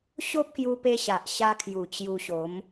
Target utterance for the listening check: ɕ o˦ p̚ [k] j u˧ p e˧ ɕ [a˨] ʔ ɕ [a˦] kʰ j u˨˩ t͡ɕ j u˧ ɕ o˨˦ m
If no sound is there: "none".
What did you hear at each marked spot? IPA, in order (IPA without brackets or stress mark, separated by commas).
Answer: k, a˨, a˧